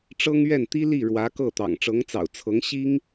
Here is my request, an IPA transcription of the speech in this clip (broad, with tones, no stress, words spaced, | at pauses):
ʈ͡ʂɤ˥ŋɥɛ˥˩nt̪i˥ li˥˩ ɻwä˧˥ kɤ˥˩t̪ɑ̰˨˩ŋ ʈ͡ʂɤ˧˥ŋt͡sɑ̰˨˩ʊ̯t͡sʰɤ˧˥ŋ ɕi˥ŋ